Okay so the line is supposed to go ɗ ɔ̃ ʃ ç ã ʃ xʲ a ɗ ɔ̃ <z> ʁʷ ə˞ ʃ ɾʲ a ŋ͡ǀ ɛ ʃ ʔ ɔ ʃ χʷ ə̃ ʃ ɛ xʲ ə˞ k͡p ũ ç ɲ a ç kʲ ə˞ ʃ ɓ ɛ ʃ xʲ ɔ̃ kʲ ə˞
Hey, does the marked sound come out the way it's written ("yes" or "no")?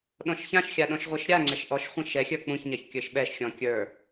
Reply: no